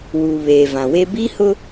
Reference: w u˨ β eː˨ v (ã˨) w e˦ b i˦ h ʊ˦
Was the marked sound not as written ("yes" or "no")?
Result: no